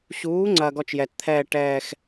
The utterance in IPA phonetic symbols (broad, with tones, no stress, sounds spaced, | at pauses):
ɕ uː˨˥ ŋ͡ǀ ɐ˨ ɡ ɔ˥˧ t͡ʃ j ɛ˨ t t̪ʰ ɛː˥˧ ʈ ɛː˥˧ x